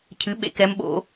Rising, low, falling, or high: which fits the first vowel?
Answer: rising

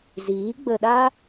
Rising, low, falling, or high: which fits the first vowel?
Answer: rising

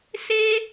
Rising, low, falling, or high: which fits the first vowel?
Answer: high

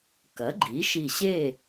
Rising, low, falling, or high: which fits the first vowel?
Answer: rising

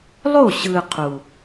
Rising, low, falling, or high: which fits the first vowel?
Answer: falling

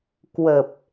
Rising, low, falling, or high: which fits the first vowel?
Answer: low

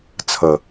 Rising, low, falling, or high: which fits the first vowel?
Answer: low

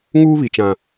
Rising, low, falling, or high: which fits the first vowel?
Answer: high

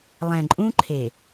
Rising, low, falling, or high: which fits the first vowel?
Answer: low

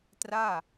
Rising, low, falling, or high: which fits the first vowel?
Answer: falling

